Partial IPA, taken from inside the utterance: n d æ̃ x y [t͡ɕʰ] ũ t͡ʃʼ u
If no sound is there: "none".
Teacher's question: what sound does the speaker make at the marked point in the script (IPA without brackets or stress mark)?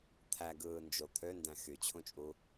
t͡ɕʰ